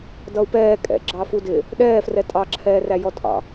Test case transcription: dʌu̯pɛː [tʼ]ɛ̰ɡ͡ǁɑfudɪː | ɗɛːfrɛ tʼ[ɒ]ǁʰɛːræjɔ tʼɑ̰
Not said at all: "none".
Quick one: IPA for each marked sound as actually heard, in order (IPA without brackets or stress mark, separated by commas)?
kʼ, ɑ